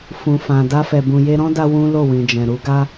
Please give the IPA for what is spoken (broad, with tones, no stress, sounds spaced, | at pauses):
f ũ˨ f ã˨ d a˧ f ɛ˨ b ũ˨ j e˧ ɾ ɔ̃˦ d a˧ w ũ˦ l o˦˨ w ĩ˨ d͡ʒ ɛ̃˨ ɾ u˨˦ ɡ a˦